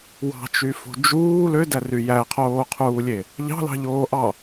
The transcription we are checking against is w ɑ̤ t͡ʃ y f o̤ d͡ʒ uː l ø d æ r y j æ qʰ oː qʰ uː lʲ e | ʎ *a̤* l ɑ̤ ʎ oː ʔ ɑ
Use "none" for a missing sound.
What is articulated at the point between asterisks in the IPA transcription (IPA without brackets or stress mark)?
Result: ɑ̤